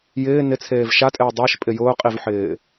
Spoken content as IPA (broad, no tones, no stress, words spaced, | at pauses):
jɪː nɪt͡sʰeːv ʃatʼɪː dˤeʃpʼɪ jʊːqʼivħɪː